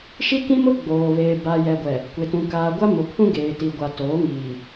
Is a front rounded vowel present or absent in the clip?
absent